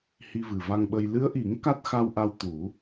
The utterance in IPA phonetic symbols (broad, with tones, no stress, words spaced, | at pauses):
hi˧vɨ˨˩va˧ŋɓə˧j lɨ˧˥ə̯ʔi˨˩˦ŋ ka˦˥t̚xa˧wʔa˧w t̪u˨˩˦